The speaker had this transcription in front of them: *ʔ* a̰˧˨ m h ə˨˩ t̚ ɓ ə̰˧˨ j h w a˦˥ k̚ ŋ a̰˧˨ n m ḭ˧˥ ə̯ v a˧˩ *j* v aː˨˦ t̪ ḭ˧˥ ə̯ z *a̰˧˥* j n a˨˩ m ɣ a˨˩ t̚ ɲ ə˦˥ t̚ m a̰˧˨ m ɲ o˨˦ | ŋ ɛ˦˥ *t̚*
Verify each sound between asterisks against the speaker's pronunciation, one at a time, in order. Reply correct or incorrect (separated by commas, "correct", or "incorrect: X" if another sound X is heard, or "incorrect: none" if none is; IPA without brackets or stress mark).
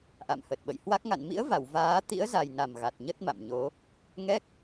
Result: correct, incorrect: w, incorrect: a˨˩, incorrect: k̚